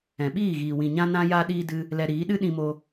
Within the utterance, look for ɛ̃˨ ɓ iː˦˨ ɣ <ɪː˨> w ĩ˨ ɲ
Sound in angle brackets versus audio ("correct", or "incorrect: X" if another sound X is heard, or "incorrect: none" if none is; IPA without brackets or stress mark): incorrect: iː˨